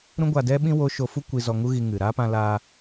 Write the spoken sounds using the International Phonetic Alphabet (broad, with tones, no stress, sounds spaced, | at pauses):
ɾ ũ˦ ɡʷ a˧ d ɛ˦ ɓ ĩ˦ w o˦ ʃ o˧ f u˦ kʷ i˧ z ɔ˧ ŋ u˦ ɣ i˧ ŋ ɨ˨ ɾ aː˦ p ã˧ l aː˧